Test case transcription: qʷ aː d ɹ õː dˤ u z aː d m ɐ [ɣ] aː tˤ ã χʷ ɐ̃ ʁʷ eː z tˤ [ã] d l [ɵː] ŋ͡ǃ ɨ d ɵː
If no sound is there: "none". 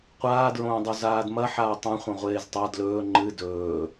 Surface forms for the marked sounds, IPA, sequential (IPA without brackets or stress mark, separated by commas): ħ, a, ɵː